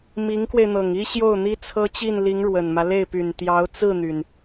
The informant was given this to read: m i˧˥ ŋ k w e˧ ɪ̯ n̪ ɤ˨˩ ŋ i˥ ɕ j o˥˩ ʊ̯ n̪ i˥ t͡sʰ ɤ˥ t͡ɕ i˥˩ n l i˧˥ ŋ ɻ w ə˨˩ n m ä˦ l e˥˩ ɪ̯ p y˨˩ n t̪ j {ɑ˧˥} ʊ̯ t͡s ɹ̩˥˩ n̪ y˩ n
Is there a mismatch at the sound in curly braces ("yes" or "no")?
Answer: no